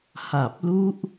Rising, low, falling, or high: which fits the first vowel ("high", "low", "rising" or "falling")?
low